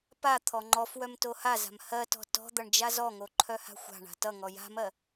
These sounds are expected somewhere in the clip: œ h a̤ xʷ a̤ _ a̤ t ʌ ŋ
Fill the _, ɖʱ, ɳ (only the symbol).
ɳ